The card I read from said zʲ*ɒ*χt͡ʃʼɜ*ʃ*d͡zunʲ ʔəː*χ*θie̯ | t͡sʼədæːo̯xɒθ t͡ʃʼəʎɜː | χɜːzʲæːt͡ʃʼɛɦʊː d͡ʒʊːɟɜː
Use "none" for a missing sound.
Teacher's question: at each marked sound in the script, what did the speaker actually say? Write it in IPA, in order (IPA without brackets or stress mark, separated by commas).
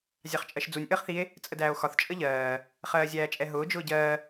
ɑ, ʃ, χ